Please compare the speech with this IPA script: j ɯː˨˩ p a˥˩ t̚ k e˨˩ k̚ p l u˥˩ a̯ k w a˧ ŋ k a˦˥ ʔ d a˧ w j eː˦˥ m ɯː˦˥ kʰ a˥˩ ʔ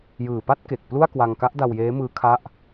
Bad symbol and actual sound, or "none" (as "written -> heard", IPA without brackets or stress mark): none